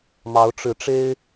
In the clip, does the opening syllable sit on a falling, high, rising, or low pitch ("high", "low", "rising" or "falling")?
rising